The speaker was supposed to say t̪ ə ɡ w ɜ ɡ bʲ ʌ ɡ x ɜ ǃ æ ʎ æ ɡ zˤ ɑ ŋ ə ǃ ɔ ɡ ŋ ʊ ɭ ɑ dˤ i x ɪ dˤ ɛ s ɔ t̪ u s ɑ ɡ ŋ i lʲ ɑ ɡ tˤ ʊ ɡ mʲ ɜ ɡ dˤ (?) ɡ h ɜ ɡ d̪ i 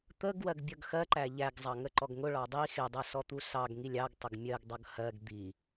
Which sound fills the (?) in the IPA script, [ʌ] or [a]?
ʌ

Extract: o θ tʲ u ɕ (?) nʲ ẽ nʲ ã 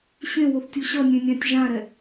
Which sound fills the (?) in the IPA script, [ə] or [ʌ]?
ʌ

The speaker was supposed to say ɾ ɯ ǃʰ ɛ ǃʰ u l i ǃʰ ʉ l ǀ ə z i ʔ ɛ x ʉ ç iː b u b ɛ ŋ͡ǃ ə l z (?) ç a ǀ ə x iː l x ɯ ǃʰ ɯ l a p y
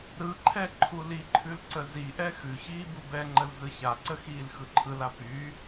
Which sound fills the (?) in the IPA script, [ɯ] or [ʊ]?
ɯ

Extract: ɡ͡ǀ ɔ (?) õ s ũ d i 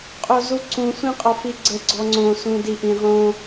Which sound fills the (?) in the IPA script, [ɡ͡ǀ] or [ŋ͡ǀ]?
ŋ͡ǀ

